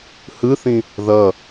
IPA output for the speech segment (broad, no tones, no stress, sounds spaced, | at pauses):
h ɯ θ ĩ | ð ʌ